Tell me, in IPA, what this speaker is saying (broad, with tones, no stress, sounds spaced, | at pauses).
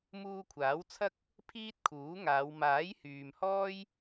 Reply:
m uː˧ kʷʰ aː˨˥ w t͡sʰ ɐ˥ k̚ | pʰ iː˥ t̚ kʰ uː˨˥ ŋ aː˨˧ w m aː˨˥ j h yː˨ m h ɔː˥ j